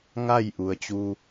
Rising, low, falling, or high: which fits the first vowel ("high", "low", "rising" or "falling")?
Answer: falling